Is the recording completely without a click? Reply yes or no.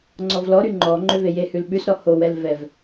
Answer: no